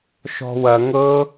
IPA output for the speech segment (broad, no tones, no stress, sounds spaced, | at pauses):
ʃ ɔ̤ w ɐ ŋ ɤ